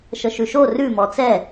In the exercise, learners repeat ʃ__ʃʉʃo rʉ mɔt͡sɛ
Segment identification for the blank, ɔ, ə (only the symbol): ə